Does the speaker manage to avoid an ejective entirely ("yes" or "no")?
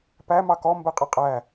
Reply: no